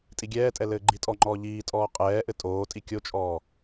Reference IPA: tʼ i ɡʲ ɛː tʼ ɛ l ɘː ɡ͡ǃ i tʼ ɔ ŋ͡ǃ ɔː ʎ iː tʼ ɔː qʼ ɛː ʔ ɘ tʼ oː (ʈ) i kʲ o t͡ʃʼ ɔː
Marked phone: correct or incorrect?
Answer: incorrect